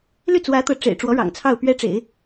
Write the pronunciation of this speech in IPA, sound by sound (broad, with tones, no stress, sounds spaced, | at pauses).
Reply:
l y˥˩ t͡s w ä˧˥ t̪ ɤ˧˥ ʈ͡ʂ ḛ˨˩ ɪ̯ ʈ͡ʂ w ɔ˧˥ ɻ ɑ̰˨˩ ŋ t͡sʰ ɑ˥˩ ʊ̯ p ɥ ɛ˥ ʈ͡ʂ ḛ˨˩˦ ɪ̯